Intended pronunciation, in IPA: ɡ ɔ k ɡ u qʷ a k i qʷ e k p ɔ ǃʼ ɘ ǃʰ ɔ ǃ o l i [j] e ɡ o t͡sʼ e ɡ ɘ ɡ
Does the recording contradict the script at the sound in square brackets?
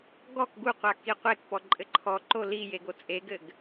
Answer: no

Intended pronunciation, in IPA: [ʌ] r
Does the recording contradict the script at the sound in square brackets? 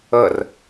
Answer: yes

